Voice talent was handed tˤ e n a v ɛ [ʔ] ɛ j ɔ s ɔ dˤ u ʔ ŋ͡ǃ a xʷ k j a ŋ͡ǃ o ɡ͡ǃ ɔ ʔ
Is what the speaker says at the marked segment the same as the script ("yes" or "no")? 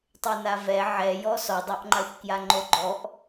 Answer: no